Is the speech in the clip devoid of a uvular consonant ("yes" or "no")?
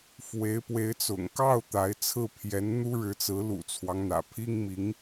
yes